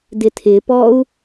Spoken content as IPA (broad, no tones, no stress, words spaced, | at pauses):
dɪtʰɪpɔu̯